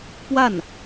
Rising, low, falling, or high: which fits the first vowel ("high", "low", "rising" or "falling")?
falling